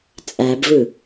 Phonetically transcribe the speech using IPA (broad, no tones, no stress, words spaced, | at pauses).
t͡sʼæbvɯ